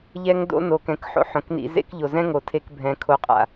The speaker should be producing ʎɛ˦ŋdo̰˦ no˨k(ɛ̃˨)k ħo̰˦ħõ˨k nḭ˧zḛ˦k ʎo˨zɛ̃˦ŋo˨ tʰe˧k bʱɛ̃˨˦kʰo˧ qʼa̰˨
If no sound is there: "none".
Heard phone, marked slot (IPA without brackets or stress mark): ɛ̃˨